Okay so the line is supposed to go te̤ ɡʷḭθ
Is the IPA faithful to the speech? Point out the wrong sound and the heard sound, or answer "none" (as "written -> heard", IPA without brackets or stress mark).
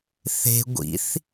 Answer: t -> θ